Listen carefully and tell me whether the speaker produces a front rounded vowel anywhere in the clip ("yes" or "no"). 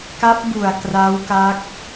no